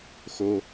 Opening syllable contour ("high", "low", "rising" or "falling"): low